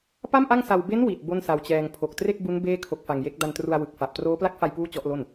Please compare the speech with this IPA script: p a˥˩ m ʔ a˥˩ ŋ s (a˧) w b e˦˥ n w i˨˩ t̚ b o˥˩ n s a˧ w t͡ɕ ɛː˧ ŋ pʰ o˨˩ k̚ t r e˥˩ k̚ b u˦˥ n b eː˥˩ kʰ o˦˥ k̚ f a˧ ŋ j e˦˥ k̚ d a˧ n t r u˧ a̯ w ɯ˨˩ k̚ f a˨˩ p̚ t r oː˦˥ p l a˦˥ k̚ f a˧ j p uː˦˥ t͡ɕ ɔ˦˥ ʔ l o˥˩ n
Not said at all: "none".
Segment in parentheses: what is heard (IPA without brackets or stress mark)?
a˧